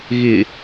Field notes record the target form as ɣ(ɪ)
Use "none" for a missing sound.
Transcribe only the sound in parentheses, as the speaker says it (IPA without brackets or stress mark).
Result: ɪ